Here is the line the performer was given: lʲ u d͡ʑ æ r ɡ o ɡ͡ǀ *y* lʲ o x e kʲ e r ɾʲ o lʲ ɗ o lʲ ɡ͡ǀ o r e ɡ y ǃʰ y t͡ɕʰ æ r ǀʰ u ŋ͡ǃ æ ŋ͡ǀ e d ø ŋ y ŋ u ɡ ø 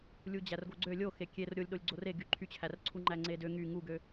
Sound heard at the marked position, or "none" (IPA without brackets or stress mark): ø